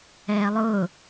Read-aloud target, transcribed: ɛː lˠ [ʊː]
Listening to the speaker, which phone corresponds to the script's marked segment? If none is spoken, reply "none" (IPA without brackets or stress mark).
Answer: ʊː